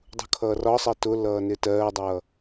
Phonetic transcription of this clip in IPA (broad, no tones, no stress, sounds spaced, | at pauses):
dˤ ṳ kʰ ʌː r ɒ sˤ ɜ t ʊ l ʌː n ɪ t ɜː dˤ ʌ